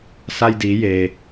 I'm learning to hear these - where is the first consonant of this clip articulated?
tongue tip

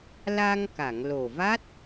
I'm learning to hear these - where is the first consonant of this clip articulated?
tongue tip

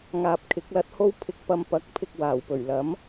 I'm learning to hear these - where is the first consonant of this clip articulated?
velum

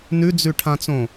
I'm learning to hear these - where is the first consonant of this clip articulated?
tongue tip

